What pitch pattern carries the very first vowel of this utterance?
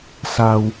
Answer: low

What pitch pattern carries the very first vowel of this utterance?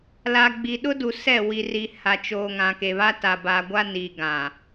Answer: low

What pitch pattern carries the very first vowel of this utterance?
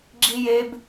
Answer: high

